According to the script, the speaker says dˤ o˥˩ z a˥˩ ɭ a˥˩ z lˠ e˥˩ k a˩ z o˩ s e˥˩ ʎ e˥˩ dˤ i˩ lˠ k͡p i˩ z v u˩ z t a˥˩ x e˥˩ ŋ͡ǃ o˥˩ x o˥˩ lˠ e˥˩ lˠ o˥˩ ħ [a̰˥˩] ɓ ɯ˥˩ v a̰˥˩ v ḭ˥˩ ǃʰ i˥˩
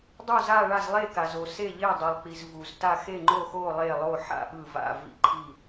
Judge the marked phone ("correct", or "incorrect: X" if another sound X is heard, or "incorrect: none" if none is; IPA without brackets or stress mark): correct